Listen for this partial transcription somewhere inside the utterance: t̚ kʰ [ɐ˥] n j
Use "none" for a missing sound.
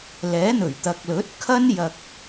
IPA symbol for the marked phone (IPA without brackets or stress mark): ɐ˥